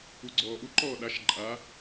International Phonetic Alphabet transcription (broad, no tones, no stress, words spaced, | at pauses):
uɡ͡ǀɔːʔuǃɔː ɗaʃ ǃʼa